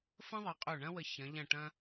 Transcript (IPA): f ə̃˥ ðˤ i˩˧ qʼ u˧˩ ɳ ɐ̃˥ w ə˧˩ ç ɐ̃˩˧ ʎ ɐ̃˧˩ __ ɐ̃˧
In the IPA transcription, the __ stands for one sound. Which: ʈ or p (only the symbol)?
ʈ